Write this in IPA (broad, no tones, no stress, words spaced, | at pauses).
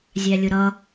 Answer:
zʲælʲʊɾʌ